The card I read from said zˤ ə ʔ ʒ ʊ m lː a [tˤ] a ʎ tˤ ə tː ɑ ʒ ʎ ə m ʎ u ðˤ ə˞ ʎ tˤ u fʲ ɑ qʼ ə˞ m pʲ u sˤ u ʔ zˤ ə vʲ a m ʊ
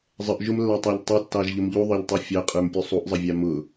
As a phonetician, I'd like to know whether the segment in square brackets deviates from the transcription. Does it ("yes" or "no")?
no